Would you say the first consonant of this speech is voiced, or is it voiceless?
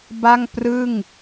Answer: voiced